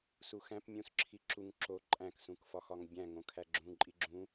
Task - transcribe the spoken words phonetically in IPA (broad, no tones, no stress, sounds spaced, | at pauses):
s u x æ̃ p mʲ ũ s ǁʰ i ǁ u ŋ ǁ o ǃʼ æ̃ k s ũ k f ɒ x ɒ ŋ bʲ æ̃ ŋ õ kʰ æ ɡ͡ǁ ũ ǃʼ i ɡ͡ǁ ũ